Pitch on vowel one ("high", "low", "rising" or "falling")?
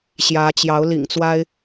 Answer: rising